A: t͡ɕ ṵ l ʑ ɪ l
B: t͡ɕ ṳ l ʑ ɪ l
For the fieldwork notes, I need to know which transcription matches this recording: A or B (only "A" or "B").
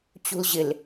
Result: B